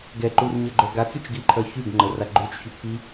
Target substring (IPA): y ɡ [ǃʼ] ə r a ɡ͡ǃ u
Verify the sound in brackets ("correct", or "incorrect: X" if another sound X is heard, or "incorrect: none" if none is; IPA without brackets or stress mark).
incorrect: ŋ͡ǃ